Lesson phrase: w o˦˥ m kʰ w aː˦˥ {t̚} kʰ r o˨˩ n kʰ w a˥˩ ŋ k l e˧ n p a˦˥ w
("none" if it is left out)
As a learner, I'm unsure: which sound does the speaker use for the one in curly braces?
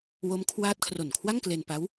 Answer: t̚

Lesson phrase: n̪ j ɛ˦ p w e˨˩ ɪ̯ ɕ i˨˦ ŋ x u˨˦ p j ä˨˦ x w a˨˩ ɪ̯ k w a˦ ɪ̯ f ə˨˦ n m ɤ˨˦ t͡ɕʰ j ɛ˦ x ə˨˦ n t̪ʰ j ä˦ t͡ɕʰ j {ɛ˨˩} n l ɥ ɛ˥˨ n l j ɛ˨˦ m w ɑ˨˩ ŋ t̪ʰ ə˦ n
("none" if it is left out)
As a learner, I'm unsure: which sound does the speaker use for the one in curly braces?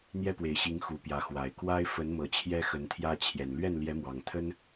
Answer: ɛ˨˩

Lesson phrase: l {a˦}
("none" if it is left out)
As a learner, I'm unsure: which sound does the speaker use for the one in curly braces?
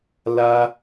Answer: a˦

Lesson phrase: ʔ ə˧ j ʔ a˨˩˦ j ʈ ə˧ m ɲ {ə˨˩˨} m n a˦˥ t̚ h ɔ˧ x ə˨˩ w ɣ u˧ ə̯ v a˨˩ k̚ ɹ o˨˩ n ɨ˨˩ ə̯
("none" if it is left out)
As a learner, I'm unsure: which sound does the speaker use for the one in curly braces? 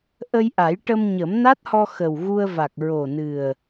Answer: ə˨˩˦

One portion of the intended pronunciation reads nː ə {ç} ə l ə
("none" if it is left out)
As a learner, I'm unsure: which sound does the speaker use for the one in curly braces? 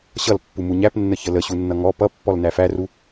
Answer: ç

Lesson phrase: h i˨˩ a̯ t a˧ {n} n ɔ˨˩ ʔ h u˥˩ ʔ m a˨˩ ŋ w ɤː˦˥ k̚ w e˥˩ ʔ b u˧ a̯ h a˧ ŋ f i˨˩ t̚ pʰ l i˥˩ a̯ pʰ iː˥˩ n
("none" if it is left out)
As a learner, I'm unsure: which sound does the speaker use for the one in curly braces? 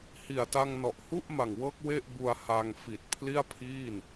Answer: ŋ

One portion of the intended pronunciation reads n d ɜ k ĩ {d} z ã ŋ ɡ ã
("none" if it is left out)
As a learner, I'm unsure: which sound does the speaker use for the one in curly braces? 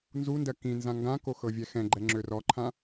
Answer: n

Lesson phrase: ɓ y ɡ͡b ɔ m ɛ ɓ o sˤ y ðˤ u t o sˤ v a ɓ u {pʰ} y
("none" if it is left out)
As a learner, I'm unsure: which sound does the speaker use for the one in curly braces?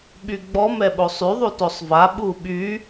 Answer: ɓ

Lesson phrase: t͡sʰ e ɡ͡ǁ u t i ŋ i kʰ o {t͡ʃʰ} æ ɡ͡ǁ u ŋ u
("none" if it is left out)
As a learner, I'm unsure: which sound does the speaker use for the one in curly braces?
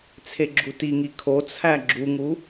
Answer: t͡sʰ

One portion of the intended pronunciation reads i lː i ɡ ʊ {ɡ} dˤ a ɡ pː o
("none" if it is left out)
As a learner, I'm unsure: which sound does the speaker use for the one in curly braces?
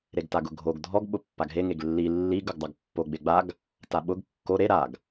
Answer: ɡ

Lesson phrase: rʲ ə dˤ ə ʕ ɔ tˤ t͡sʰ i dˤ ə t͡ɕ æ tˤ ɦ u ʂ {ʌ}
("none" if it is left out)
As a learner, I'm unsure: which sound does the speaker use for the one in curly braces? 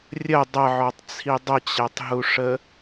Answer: ə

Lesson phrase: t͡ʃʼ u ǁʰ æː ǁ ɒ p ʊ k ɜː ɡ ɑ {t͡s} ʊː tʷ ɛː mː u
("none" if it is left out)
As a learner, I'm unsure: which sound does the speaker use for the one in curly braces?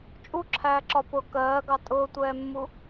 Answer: tʼ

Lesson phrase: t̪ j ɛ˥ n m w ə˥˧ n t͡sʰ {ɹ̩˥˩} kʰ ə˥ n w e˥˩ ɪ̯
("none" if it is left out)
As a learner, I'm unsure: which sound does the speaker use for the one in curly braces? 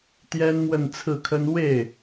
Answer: ɹ̩˥˩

